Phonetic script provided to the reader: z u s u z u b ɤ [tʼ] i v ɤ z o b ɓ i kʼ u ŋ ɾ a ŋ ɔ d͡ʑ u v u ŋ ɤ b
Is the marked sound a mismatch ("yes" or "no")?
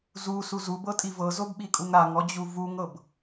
no